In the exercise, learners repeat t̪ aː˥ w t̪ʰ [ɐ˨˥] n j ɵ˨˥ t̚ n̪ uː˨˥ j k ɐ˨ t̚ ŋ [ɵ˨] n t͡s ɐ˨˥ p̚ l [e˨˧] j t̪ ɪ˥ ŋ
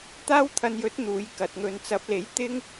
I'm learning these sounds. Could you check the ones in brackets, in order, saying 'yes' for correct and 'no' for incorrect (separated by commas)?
no, no, no